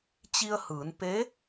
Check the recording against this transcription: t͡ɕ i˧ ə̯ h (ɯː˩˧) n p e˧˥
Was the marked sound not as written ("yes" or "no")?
no